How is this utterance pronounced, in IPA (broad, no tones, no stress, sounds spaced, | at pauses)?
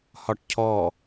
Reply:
h ɒ ʈ cʰ ɔ